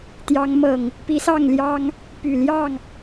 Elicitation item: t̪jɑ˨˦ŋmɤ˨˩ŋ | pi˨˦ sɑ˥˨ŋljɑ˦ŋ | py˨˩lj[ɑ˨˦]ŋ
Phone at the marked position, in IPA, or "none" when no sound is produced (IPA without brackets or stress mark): ɑ˥˨